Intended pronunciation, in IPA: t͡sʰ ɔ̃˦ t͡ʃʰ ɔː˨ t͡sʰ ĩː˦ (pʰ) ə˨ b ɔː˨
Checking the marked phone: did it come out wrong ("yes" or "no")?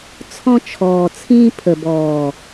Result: no